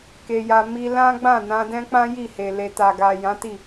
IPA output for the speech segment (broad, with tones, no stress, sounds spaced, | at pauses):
k e˧ j a˧ m i˧ l ã˦ ɡ͡b ã˦˨ n ã˧ d ɛ̃˦ k͡p ã˦ j i˦˨ h e˨ l e˨ t a˨ ɡ a˨ j ã˨˦ t i˦˨